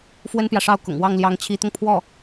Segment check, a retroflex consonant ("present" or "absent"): present